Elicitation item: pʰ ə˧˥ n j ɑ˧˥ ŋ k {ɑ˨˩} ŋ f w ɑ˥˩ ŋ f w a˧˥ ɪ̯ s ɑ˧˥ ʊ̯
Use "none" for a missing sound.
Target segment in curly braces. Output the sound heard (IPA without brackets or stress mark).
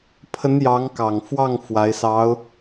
ɑ˨˩